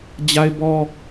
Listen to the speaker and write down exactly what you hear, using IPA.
d͡ʑ a˦ ɪ̯ b ɔ˦

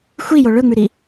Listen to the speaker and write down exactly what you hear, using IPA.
xʷ i j o ɭ ɵ ŋ͡m ʉ ɾ i

